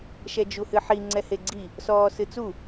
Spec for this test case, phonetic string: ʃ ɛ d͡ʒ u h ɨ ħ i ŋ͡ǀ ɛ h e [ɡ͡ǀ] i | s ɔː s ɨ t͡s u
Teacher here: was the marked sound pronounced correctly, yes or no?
yes